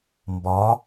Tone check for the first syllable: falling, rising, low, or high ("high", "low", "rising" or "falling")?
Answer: rising